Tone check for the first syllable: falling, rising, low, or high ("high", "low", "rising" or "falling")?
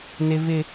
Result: high